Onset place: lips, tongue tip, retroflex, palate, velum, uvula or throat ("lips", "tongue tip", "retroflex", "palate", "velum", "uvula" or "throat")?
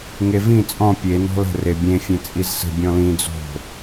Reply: velum